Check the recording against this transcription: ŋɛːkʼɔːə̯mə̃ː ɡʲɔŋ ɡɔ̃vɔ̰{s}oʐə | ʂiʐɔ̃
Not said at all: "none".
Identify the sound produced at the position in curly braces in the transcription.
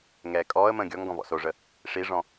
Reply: s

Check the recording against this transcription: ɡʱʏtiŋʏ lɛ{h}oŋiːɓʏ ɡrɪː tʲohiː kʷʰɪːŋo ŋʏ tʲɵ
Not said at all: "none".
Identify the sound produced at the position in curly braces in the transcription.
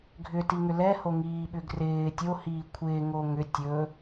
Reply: h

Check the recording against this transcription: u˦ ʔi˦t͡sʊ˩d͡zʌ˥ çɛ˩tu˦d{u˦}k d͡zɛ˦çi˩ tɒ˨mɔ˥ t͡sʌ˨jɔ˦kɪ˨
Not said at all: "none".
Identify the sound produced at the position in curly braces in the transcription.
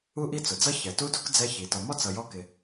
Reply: u˦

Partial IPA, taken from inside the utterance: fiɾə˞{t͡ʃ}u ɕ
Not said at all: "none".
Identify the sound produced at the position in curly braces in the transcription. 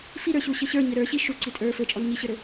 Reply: ɕ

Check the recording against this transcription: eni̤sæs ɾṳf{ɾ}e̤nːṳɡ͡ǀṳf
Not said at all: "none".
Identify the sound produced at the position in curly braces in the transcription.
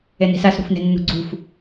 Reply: n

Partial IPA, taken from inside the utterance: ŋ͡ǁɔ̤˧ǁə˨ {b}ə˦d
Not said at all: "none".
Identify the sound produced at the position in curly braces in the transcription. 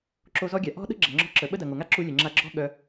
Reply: ɓ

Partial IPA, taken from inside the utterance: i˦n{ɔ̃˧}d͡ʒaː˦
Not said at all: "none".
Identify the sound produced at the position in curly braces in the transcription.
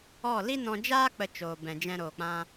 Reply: ɔ̃˧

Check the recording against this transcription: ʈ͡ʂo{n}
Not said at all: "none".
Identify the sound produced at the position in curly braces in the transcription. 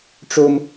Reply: m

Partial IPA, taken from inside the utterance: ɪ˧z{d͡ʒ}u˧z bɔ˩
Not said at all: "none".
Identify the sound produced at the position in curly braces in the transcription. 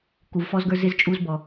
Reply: t͡ʃʼ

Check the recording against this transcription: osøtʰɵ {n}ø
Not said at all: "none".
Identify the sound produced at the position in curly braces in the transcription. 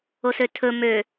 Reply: m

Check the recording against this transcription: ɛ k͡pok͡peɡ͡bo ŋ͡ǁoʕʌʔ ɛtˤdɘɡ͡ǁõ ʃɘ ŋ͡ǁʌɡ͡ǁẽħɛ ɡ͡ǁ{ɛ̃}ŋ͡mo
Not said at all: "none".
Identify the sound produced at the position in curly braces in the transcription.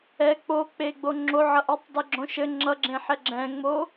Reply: ɛ̃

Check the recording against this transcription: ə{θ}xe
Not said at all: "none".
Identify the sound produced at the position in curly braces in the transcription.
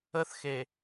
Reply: θ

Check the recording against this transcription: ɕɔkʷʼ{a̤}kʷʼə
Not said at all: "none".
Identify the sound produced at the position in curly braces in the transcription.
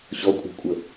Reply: a̤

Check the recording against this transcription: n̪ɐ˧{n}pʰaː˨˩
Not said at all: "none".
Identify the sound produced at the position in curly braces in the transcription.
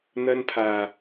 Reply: n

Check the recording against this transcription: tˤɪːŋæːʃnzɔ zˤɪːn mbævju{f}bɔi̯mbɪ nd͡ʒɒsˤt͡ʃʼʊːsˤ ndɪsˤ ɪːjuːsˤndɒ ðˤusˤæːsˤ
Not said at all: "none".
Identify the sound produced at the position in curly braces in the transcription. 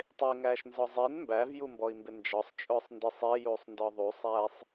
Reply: m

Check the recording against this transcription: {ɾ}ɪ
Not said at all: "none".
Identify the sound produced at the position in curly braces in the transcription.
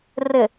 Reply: r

